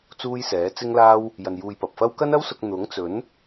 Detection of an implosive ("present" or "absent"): absent